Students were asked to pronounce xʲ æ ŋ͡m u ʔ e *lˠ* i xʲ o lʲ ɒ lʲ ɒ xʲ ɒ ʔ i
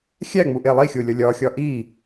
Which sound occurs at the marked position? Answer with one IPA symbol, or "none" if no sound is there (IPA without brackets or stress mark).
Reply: lˠ